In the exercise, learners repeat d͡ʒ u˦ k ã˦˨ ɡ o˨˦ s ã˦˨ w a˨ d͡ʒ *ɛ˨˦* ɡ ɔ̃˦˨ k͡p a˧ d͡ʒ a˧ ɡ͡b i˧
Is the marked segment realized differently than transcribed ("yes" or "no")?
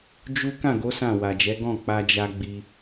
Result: no